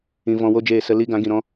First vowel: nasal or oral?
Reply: nasal